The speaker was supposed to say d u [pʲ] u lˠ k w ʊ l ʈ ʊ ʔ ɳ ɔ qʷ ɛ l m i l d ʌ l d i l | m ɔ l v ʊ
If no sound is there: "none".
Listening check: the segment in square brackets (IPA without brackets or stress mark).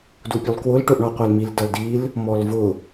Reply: pʲ